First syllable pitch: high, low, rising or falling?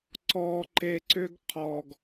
low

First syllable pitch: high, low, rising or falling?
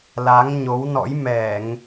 rising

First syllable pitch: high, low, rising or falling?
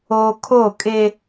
high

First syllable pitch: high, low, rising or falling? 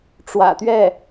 low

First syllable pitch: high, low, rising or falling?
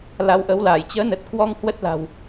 rising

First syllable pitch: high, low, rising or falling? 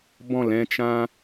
falling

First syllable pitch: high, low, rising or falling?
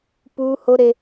high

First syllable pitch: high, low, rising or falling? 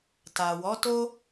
low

